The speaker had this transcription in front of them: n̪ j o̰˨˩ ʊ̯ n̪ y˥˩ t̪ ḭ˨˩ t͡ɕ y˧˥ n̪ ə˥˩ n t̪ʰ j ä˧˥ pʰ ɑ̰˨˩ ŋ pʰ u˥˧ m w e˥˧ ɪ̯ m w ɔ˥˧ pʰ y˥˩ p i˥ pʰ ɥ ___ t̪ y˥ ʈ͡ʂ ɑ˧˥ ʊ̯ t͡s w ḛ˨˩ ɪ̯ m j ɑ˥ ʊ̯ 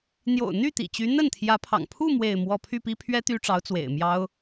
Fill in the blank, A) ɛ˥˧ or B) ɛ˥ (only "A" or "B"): B